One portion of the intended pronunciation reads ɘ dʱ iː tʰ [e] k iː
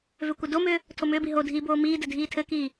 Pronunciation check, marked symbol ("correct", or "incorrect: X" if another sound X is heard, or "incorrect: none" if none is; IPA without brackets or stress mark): incorrect: ɘ